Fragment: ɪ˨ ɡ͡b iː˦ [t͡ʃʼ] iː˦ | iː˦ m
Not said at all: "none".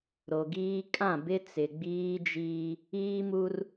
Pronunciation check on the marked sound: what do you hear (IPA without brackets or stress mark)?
d͡ʒ